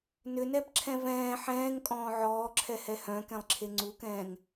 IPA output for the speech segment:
n ʏ n ɛ b ǁʰ ɛ̃ v ɛ̃ː ħ ɛ̃ː ŋ kʼ ɔ̃ː ʕ ɔː ǁʰ ɛ h ɛ h œ̃ k ɛ̃ lˠ ǁʰ e ŋ͡ǀ u k ɛ̃ː ŋ

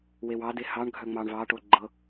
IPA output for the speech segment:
w e w ɑ d e h ɑ ɳ ɡʱ œ ŋ͡m ɑ ɳ v ɑ ʈ o ɡ͡ǃ ɤ

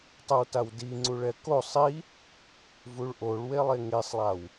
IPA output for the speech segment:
tˤ ə w t a w d i ŋ͡ǀ u ɭ ɛ k o sˤ i | v u ɭ ʔ o ɭ w e lˠ e ŋ e sˤ lˠ a w

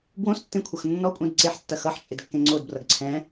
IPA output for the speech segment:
b w õ s tː ẽ kʷʰ ɐ x nː ɔ kʷʼ ẽ d ǀ e ħ tː ɐ x ʌ ħ t͡ʃʼ ɪ d kː ẽ ŋ͡ǀ o d b r ʌ ɡ ǀʰ ɛ̃

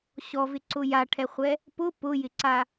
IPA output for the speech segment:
ɕ ɔ v ɪ ǀ ʊ j a ʈʰ ɛ χʷ ɛ | p ʊ p ʊ j ɪ ǀ a

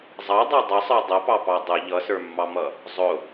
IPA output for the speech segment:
zˤ ɑ dˤ ɑ dˤ ʌ sˤ ə˞ dˤ ʌ p ɑ p ɑ dˤ ʊ ʎ ʌ s ə˞ mː ɑ m ʌ | zˤ ʊ

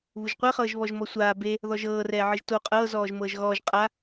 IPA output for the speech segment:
β u ʒ qʷ ɛ χ ɤː ʒ β ɔ ʒ m ɔ sʷ aː b e | ð ɔ ʒ ɤː r ɛː ʕ ɯ ʒ t o qʼ ɤː z ɔː ʒ m ɤː ʒ ɣ ɔː ʒ qʼ a

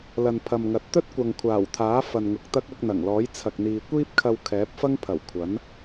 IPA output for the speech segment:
l ɐ˨ n pʰ ɐ˨ m ŋ ɐ˨ t̚ t̪ ɵ˥ t̚ kʷ ɐ˨ ŋ kʷʰ aː˨˩ w t̪ʰ aː˨˥ f ɐ˨ n ŋ ʊ˨ k̚ t̪ ɐ˥ k̚ ɐ˧ k̚ n̪ ɐ˨˩ ŋ l ɔː˨˥ j t͡sʰ ɐ˨ k̚ n̪ iː˨ kʷ iː˥ p̚ kʰ ɐ˧ w kʰ ɛː˨˥ p̚ f ɐ˥ ŋ pʰ ɐ˨˩ w kʷʰ ɐ˨˥ n

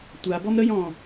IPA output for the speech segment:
tʷ a b ɔ m ɾ ə j ɔ̃

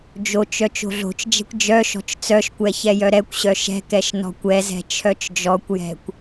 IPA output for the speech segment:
d͡ʒ o t͡ʃ œ t͡ʃ o̤ ɮ o̤ t͡ʃ d͡ʒ ɛ̤ kʷ d͡ʒ œ ʃ ɔ̤ t͡ʃ t͡s œ ʃ kʷ ɛ ç ɛ j œ ɾ ɛ kʷ ɕ œ ʃ ɛ̤ k ɛ ʃ n ɔ̤ kʷ ɛ z ɛ̤ t͡ʃʰ œ t͡ʃ d͡ʒ ɔ kʷ j ɛ̤ kʷ

